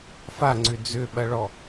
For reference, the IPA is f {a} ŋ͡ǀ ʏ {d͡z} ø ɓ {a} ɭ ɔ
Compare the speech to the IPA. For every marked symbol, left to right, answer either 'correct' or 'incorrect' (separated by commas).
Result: correct, correct, incorrect